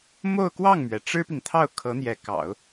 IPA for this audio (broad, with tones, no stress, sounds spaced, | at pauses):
m o˥˧ ʊ̯ k w ɑ˥˩ ŋ m ɥ ɛ˩ ʈ͡ʂ ɻ̩˥ p i˨ ŋ t̪ʰ ɑ˥˩ ʊ̯ kʰ ɤ˧˥ n̪ j ɛ˧˥ k ɑ̰˨˩˦ ʊ̯